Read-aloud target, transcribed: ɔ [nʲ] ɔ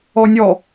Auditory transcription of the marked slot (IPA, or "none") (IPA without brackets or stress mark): nʲ